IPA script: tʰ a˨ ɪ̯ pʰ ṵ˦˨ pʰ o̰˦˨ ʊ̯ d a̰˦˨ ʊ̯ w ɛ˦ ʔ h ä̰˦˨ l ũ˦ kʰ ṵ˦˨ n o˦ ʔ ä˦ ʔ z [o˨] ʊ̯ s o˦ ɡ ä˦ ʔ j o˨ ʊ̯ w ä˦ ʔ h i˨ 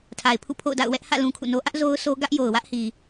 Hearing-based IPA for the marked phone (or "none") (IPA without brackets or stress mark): o˦